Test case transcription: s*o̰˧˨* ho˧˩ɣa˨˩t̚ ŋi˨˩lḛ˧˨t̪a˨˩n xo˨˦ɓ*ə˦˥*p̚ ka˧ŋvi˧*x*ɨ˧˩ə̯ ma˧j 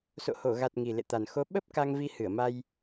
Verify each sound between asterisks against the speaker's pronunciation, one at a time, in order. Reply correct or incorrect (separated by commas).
correct, correct, incorrect